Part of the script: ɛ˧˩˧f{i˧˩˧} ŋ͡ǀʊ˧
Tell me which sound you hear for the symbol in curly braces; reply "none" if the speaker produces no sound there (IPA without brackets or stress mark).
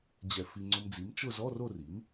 i˧